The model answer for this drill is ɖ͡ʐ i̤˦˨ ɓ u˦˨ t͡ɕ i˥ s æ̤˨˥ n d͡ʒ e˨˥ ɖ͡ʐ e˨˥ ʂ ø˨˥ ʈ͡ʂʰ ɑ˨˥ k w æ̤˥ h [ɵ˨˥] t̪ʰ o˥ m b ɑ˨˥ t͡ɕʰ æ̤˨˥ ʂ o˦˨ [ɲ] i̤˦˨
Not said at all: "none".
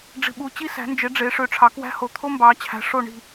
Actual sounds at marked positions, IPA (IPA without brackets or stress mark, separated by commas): o˨˥, ɳ